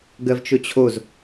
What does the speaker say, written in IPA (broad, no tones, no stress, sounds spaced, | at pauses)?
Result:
ɡ ɜ v t͡ʃ o t͡ɕʰ o z